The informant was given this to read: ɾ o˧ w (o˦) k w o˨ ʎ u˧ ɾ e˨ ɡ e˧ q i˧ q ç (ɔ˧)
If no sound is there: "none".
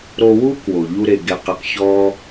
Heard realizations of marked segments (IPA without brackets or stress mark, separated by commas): u˦, ɔ˦